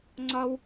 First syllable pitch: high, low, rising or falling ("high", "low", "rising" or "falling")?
high